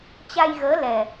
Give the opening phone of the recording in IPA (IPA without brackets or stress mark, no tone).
t͡ɕ